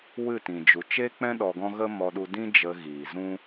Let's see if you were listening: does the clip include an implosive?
yes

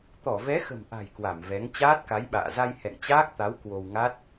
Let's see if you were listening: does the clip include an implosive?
yes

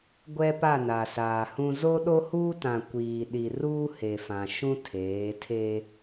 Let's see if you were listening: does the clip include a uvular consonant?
no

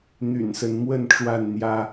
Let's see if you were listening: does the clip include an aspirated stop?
no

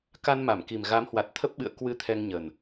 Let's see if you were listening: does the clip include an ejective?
no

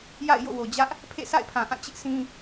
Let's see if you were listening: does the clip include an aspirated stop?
yes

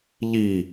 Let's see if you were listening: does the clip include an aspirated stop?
no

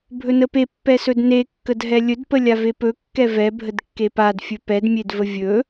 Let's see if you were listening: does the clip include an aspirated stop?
no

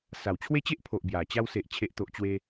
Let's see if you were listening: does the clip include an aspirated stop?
yes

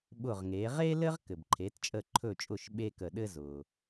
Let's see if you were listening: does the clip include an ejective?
yes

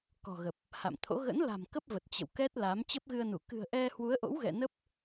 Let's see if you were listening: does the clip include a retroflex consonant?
no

